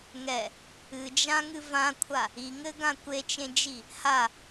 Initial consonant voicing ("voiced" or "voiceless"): voiced